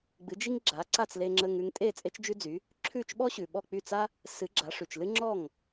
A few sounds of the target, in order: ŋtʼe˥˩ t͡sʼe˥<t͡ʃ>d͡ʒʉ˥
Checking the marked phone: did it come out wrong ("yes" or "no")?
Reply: no